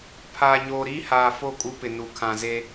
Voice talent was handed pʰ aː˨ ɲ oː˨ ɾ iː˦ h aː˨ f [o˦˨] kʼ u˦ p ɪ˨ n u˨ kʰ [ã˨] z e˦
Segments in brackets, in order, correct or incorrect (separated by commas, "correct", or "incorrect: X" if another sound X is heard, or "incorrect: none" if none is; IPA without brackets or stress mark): correct, correct